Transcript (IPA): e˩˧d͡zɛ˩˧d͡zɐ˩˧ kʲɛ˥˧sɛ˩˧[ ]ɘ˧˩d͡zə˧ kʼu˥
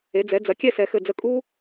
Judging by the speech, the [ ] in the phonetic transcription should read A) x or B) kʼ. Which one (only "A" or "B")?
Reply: A